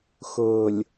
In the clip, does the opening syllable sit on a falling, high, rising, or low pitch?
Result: low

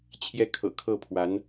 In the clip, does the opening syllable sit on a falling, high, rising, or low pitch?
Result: falling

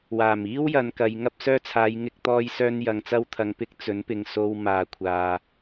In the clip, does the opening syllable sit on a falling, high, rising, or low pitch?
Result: low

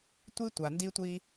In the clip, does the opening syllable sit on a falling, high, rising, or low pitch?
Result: high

